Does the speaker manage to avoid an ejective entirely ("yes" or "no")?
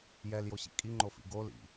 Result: no